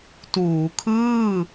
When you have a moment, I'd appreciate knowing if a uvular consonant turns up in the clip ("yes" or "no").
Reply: no